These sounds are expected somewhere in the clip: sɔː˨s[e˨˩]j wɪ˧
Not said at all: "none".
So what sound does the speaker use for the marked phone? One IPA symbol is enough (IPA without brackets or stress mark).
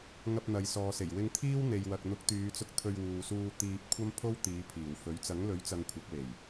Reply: e˨˩